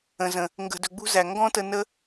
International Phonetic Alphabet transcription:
ə̃˨zə̃˨ | ŋɡə̤˨dɵ˨ɡ͡bṳ˧ zæ˨ ŋɡɔ̃˦tə˧nə˦

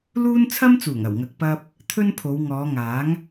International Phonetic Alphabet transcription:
luː˥n t͡sʰɐ˥mt͡suː˨˩ŋɐ˨˩w ŋɐ˨k̚pɐ˧p̚ | t̪ʰɵ˥npʰo˨˧w ŋɔː˨˧ŋaː˨˥ŋ

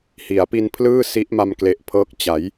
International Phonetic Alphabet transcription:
hi˩˦a̯pi˧npʰlɯː˥˩ si˦˥ʔma˧mkle˨˩ʔpʰɤː˦˥k̚ t͡ɕa˩˦j

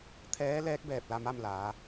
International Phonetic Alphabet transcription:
t̪ʰɛː˧˥lɛː˧˥k̚ bɛː˧˩p̚la˥˨ma˥˨mlaː˩˧

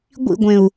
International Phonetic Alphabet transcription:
ɡʷḭɡʷẽu̯

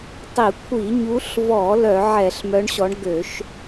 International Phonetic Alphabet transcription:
tˤi˧˩˧kʷʰi˧˩˧ɲu˨˦ɬvɔ˧˩˧ lœ˧˩˧ ʕɛ˧˩˧ɬmœ˨˦ɳɕɔ˨˦ɳ ɡø˧˩˧ʃ

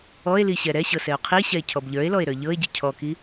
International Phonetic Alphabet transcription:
ɔe̯liɕɛ ɾɛɕɤsɛo̯ qʰiɕɛe̯ cʰɔbʎə˞e̯lɔe̯ɾə˞ ʎɤe̯ɟi cʰɔki

